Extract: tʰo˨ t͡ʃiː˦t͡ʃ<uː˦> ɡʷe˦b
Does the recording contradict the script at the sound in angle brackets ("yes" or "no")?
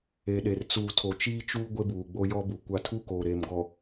no